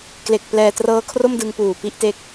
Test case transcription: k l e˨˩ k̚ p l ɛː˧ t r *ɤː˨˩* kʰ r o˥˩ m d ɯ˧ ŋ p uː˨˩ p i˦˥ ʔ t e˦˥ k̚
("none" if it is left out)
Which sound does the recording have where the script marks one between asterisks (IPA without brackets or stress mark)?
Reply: ɤː˦˥